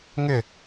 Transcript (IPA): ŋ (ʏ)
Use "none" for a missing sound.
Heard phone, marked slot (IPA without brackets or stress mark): ʏ